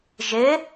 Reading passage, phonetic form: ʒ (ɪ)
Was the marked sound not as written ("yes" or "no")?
no